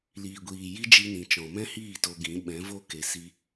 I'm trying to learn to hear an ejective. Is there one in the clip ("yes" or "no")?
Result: no